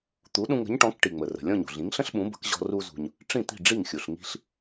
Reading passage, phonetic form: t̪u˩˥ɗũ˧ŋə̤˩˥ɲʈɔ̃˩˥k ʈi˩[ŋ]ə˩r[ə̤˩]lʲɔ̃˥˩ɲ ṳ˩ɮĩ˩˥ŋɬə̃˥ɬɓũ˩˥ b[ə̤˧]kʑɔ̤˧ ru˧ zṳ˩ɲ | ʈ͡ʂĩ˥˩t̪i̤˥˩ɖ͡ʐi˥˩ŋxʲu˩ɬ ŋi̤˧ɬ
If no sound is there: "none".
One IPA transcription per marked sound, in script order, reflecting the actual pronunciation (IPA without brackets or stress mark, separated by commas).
ŋ͡m, ə̤˩, ə̤˩˥